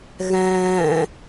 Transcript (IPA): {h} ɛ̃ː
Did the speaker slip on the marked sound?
yes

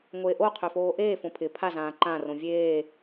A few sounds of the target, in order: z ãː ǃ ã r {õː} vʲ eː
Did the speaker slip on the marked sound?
yes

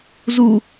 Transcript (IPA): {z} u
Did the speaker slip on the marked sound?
no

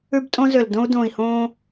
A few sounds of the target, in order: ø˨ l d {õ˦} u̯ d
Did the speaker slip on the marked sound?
no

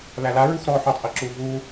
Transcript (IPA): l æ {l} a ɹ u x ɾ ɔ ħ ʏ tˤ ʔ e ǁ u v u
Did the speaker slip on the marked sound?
no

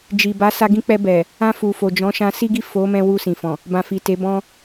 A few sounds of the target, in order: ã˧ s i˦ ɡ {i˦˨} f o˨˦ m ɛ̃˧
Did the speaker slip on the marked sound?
no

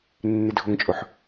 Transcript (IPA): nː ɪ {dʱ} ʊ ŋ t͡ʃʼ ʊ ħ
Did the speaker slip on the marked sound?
no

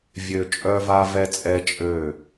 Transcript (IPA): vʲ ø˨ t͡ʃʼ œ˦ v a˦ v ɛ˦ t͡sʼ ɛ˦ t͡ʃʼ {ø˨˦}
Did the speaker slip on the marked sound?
yes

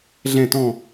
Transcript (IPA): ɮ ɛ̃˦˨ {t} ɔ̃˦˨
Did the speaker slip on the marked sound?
no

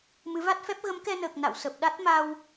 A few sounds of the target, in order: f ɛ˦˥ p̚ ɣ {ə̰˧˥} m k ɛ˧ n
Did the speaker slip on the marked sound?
yes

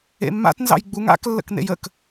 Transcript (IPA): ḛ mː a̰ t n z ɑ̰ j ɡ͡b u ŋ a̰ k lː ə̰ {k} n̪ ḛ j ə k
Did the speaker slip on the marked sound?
no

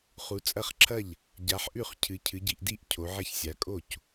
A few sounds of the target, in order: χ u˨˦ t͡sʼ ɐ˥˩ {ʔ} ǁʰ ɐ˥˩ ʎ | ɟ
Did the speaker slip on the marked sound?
yes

